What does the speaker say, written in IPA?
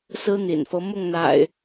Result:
sɹ̩˦n̪ḭ˨˩nfɤ˦ mʊ˥˨ŋn̪a̰˨˩ɪ̯

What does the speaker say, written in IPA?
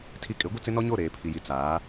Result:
tʰi˦ kʼɪ˨˦ ɡʷɪ˦t͡sɪ˦nɔ˦ɲo˦˨ ɾeː˨pʰi˨ji˨ t͡saː˨˦

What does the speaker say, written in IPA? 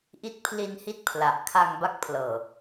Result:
ʔi˦˥t̚pʰli˧nhi˦˥t̚ pʰla˨˩ʔ kʰa˧ŋba˦˥k̚pʰlɤː˨˩

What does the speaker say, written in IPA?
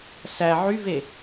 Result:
sæ ʕyve

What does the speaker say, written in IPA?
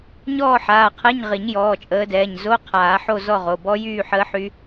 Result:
ɲɔː˥˧ħaː˩˧˩qʰɛ˧˥˧ɲʁi˨˩˦ɲ jɔː˩˧˩t͡ʃʼəː˨˦dɛː˩˧˩ɲ zo˧˥˧qʰaː˨˩˦ħo˥˧ zɔ˥˧ʁo˩˧˩ bɔ˦˥ jyː˥˧ħəː˦˥ħy˦˥

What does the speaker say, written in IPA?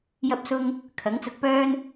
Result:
jɐ˥p̚sʊ˥ŋ | kʰɐ˨˥ŋt͡sʊ˧k̚pœː˥n

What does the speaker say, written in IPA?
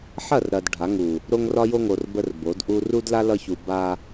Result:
ħɐ˦˨rɾɐ˨d ɖʱa˨˦ŋu˨ | ɾo˦ŋrɒ˦jo˦ŋo˨r bə˦rbo˨˦dʔu˦ ru˦dla˦ lʌ˦çu˨ ba˦

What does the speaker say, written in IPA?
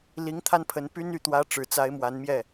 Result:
li˧˥ŋ t̪ʰa˥npʰə˧˥n py˥n y˥˩t̪wä˥ ʈ͡ʂɻ̩˨˩t͡sa˧˥ɪ̯ mwa˧˥nmjɛ˥˩

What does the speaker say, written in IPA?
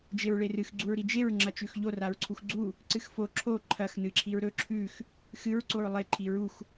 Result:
d͡ʒeɹɭerɨx ɡ͡ǀuɹɾid͡ʒeɹ ŋ͡ǁɐt͡ʃʉxʎo raɹǀʰuxɡ͡ǀu | ǀɨxfo ǁʰo ǃʰɐx nɨǁʰiɹɾɵ ǁʰʉx | xɨɹ ǀoɹlˠe ǃʰiɹux

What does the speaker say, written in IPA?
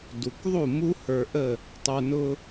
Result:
du˩kðˤu˥˩ mu˥ hə˞˧ʔə˥˩ | tˤə˞˧nʊ˥

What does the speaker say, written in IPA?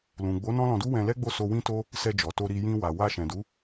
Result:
lũ˨ɡ͡bo˨˦ nɔ̃˦lɔ̃˧du˦ wɛ̃˧lɛ˦ɡ͡bo˦˨so˧ wĩ˦to˦ | sɛ˧d͡ʒɔ˨to˧ ɾi˧ jĩ˧wa˨ wa˧ʃɛ̃˨du˨˦

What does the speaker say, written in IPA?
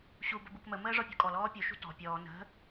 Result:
ɕubə bukməməː ʐɔpʲṳkʼɔlɔː pʲuʃṳ tɔ̤ pʲɔː nə̤

